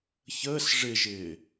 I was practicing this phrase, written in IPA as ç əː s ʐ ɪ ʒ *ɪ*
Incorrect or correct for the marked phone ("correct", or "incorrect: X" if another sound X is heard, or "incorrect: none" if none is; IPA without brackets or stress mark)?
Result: incorrect: ɪː